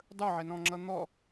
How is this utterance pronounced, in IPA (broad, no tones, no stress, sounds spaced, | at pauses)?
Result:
dˤ ə˞ ʕ ɛ n ɔ̃ ŋ͡ǁ ʌ n̪ ɔ